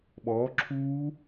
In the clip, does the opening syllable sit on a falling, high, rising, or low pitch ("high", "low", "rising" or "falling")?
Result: rising